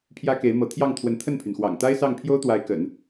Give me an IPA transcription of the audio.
pʰ j ä˥ k e˧˥ ɪ̯ m ɤ˧˥ t̪ʰ j ɑ˥˩ ŋ t̪ʰ w ə˧˥ n t̪ʰ ə˥˩ n pʰ y˩ n x w ɑ̰˨˩ ŋ t̪ a˥ ɪ̯ s ɑ˥˩ ŋ pʰ j o˥ ʊ̯ t̪ w a˧˥ ɪ̯ k ə̰˨˩˦ n

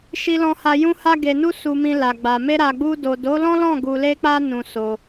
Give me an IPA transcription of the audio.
ʃ i˨ l ɔ̃˨ h a˨ j ũ˧ h a˧ ɡ e˨ n u˧ s u˨ m ĩ˨ l a˨ ɡ͡b a˨ m e˧ ɾ a˨ ɡ͡b u˧ d o˨ d o˨˦ l ɔ̃˦ l ɔ̃˦˨ ɡ u˧ l e˦ k͡p a˦ n ũ˧ s o˧

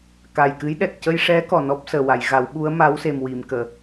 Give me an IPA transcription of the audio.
k a˨˩ j k ɨ˧˥ j ɗ ɛ˨˩ k̚ c ə˧ j ʂ ɛ˧˥ k ɔ˨˩ n ɔ˦˥ p̚ s əː˨˩ w a˨˩˨ j ɣ a˨˩˦ w ɓ u˧˥ ə̯ m a˧˥ w s e˨˩ m w i˨˩˨ m k əː˨˩˨

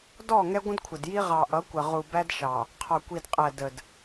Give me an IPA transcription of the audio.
d ɔ˦˨ ŋ ɛ˦ ɡʷ ə̃˦ d kʷʰ ə˨ d j i˦ ʁ ɑ˨ ʔ ʌ˨˦ kʷ ə˨ ʁ u˨ b æ˦ d ʃ ɑ˨ | qʰ ɒ˨ kʷ i˨ d qʼ æ˨ d ə˨ d

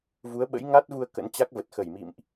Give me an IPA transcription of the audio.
v u˨˦ ə̯ ɓ ə̰˧˥ j ŋ a˦˥ t̚ v u˧ ə̯ k ə̰˧˥ n t͡ɕ a˦˥ k̚ v ə˨˩ t̚ x ə˧˩ j m ḭ˧˨ m ʔ

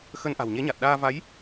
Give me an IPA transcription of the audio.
x ə˧ n ʔ a̤˨˩ w ɲ e˨˦ ɲ a˨˩ t̚ ɗ aː˧ v a˨˦ j

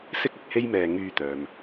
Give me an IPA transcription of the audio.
s ɪ˥ k̚ ɪ˨ k̚ h e˥ j m ɛː˧ ŋ yː˧ t̪ œː˨ m

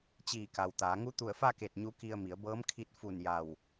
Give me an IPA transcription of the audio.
t͡ɕ iː˧˩ k a˩ w t̪ aː˩˧ ŋ u˧˥ t̪ u˧˩ ə̯ f a˥˨ k e˧˩ t̚ ɲ u˧˥ k i˧ ə̯ m i˩˧ ə̯ b ɤː˧˥ m kʰ i˧˥ t̚ f u˧˩ n j a˧˩ w

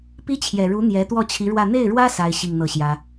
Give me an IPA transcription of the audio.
p i˥ t͡ɕʰ j ɛ˨˩ ɻ u˧˥ n̪ j ɛ˧˥ t̪ w ɔ˥˩ t͡ɕʰ i˧˥ ɻ w ä˥˧ n̪ e˥˩ ɪ̯ ɻ w ä˥ s a˥ ɪ̯ ɕ i˥˧ ŋ n̪ ɤ˥˩ ɕ j ä˥

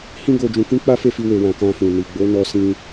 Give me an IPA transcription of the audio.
h ĩ˦ ɡ o˧ d͡ʒ ũ˧ k ĩ˦ k͡p a˦ f e˦˨ f i˧ w e˧ w ã˧ k ã˧ f ũ˨ n i˨ ɡ͡b o˨˦ n ɔ˧ s ĩ˧

